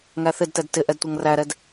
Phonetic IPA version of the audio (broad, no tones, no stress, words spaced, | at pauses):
ŋæθɪdtɛd tɪ ʔɛdtʷʌŋræɾɛd